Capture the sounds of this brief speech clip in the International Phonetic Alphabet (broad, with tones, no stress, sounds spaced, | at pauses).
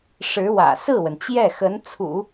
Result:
ʂ ɻ̩˧˥ w ä̰˨˩ s ɹ̩˥˩ w ə˩ n t͡ɕ j ɛ˥˩ x ə˧˥ n t͡sʰ ṵ˨˩˦